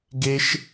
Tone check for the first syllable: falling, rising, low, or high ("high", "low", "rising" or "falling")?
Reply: high